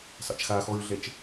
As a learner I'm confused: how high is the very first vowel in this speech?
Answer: low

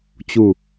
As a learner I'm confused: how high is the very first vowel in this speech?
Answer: high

